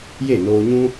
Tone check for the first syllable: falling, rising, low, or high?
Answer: falling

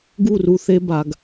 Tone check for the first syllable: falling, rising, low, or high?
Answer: falling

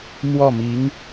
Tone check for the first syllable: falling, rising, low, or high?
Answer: falling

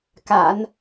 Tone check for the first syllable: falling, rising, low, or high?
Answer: low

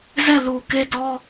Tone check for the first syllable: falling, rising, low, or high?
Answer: falling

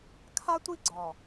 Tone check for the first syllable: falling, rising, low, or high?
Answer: high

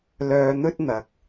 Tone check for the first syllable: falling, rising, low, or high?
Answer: low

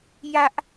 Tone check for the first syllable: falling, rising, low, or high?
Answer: high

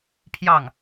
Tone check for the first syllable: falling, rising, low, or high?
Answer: falling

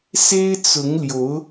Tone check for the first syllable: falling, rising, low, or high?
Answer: high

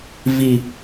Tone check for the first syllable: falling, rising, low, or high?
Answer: high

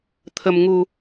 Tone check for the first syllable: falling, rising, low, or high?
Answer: low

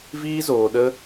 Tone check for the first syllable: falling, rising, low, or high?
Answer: high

